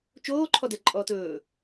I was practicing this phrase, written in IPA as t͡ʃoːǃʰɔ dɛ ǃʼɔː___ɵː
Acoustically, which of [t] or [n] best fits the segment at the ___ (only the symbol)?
t